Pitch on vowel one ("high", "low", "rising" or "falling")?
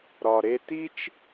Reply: low